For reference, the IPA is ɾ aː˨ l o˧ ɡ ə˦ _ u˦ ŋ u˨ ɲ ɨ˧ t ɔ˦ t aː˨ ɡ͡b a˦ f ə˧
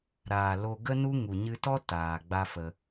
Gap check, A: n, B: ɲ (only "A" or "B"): A